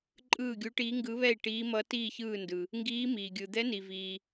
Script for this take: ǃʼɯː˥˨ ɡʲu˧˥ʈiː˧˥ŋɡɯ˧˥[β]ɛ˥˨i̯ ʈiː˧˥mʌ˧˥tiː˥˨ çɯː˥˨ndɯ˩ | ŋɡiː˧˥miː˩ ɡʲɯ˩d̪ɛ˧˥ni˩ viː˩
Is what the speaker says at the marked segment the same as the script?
yes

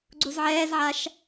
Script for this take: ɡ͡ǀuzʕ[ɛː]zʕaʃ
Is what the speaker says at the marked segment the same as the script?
yes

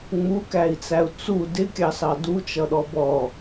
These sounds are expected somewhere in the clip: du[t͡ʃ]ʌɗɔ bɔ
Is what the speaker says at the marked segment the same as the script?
yes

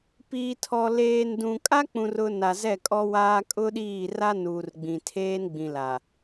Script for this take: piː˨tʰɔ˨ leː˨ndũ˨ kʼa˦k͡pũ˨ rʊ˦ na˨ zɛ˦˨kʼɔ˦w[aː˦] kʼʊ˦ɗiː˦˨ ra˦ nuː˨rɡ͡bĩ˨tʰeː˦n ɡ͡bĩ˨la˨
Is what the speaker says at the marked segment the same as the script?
yes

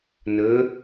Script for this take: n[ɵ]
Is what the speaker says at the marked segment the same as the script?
yes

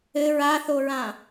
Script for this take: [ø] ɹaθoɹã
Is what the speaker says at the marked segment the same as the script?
no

